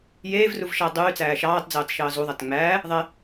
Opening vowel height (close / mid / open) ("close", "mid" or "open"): mid